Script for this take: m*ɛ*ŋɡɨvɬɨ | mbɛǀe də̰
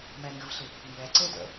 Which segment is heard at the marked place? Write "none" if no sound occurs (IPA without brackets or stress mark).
ɛ